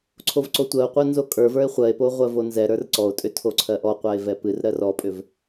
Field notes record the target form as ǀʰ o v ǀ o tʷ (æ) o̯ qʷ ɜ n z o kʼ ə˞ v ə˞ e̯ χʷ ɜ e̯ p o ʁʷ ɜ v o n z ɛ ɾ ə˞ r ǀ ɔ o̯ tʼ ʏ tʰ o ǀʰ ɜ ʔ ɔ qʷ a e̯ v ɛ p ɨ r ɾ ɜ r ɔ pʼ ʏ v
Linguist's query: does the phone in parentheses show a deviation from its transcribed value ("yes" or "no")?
yes